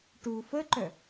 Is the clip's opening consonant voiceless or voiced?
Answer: voiceless